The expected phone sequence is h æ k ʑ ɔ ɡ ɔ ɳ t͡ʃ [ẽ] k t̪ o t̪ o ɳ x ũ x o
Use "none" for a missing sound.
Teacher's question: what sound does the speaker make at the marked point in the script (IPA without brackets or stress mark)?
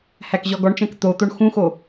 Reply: ɛ̃